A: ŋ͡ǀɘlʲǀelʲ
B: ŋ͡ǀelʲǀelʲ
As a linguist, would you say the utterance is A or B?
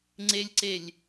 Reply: B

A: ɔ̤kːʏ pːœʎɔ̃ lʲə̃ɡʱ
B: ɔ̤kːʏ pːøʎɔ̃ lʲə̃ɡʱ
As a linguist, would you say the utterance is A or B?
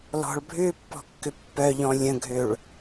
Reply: A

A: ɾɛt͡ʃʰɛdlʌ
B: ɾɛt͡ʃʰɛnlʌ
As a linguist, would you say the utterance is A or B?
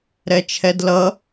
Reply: A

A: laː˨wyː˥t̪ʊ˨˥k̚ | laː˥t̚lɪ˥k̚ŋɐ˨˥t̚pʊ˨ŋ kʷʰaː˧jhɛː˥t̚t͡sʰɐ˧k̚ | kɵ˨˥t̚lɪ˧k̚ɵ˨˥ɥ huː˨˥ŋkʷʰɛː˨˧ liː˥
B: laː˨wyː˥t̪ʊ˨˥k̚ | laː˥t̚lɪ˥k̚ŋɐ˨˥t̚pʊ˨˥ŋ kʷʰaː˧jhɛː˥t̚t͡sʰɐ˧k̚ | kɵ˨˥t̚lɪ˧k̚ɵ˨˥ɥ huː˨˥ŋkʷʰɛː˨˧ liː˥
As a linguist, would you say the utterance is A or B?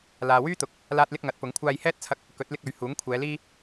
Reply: B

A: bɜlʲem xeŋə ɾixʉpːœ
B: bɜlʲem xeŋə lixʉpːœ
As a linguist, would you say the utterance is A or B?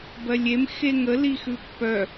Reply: B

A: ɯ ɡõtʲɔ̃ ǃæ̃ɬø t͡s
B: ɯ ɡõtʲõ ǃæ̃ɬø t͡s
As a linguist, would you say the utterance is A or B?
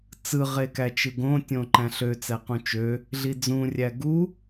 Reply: B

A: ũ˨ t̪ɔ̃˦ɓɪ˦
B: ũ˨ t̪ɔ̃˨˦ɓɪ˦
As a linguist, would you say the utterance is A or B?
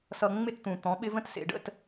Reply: B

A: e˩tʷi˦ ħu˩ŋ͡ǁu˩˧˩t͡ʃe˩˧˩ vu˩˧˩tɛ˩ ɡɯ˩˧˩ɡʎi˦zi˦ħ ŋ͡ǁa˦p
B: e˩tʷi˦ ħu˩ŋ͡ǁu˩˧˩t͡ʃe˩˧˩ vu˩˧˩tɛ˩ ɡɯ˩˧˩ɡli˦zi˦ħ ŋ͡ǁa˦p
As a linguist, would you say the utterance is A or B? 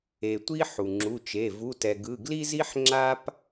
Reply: B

